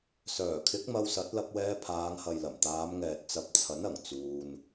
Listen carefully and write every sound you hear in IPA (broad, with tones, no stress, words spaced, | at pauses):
sœː˨˩kʰɪ˨˥k̚ mɐ˧wsɐ˨˥t̚lɐ˧p̚wɛː˧ pʰaː˨˧ŋhɐ˨jlɐ˨˩m t̪aː˨˧mŋɛː˨t̚t͡sɐ˨˥p̚ t͡sʰɐ˨˥nɐ˨˩ŋ t͡suː˧n